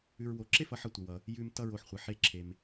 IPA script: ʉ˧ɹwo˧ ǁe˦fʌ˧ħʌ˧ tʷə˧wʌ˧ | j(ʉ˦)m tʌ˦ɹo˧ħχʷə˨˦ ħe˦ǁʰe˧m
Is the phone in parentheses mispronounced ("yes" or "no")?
yes